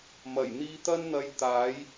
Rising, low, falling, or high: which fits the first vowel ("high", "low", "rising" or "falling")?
low